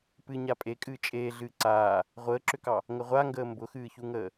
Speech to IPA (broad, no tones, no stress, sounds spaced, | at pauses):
p ɨ ɲ a pʼ e kʼ ɨː t͡ʃʼ eː ɮ ɨː ǀ aː | ʁʷ əː ǁ ʏ k ɑ | ŋ ə ʁʷ a ŋ ɡ əː m b ʊ x ɨː ç u ŋ əː